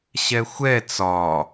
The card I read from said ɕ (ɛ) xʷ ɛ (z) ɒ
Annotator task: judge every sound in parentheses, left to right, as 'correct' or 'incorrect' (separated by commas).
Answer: correct, incorrect